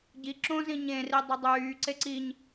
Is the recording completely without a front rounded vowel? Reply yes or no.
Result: no